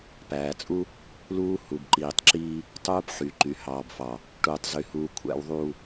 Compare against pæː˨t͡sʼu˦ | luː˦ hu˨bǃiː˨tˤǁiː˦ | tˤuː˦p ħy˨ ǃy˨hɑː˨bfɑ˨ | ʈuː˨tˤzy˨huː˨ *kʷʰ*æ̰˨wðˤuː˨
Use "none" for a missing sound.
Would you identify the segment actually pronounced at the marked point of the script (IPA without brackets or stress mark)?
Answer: kʷʰ